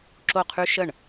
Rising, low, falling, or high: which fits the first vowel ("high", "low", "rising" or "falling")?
falling